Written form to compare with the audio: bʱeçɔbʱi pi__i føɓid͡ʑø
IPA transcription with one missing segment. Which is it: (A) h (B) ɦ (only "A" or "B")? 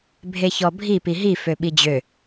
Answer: B